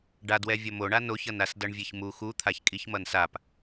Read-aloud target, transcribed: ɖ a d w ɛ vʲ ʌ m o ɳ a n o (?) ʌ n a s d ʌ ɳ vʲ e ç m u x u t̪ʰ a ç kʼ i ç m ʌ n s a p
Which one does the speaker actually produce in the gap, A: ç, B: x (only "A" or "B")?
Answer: A